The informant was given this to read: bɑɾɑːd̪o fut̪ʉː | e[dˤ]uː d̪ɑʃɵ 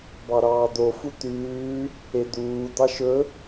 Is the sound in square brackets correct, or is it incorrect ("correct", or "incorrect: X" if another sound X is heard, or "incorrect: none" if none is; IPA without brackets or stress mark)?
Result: incorrect: d̪